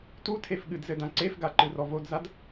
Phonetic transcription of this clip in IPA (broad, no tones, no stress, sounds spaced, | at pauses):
t u tʰ e f ɠ ɨ d z ɘ d ã ǀ e f ɡ a ǃ ɨ r ɔ v o d z a d